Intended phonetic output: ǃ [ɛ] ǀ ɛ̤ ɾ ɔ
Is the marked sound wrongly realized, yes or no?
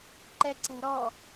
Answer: no